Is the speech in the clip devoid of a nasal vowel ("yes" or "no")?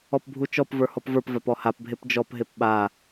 yes